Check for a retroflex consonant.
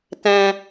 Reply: absent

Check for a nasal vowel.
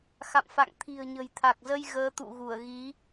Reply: absent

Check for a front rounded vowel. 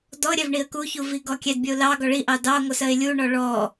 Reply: absent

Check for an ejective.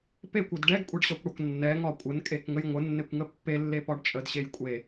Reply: present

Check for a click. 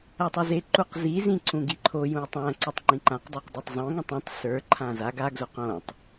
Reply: present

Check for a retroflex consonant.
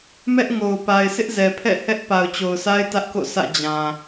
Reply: absent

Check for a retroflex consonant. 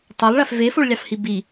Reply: present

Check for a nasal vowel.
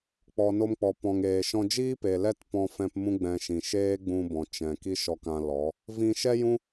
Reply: present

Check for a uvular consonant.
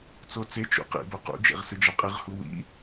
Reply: present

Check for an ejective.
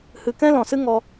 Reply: absent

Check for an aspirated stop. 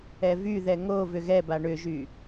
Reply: absent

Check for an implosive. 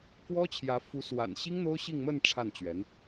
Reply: absent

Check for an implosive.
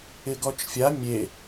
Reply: absent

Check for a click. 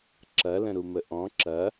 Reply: present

